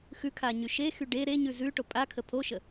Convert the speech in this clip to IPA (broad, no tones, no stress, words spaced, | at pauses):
xʉkʰaɲy ʃexy ɖe ɾeɲʉ zʉʈo pʼakʰə pʰoʃə